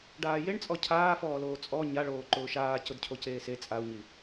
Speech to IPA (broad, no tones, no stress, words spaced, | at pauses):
ɖaːjeɳt͡sʼɔ cʰaːfɔːloː t͡sʼɔ ɲaɭoː ǃʊːʃaː cʊdcʰoceːse t͡sʼau̯ɲi